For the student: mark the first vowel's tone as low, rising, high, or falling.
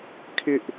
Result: high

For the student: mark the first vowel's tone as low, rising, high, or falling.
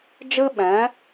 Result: high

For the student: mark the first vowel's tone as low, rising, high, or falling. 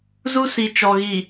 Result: high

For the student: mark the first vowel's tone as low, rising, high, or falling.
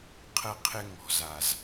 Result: high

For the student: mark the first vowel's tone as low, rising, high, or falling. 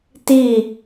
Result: falling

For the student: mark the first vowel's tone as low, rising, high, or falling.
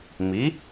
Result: rising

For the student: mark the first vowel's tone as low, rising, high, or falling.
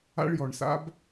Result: high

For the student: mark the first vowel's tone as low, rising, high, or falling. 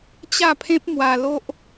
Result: falling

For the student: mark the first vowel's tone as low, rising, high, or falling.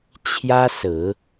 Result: high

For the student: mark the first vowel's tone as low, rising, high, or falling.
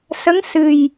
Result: rising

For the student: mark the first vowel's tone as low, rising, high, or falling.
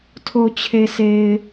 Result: low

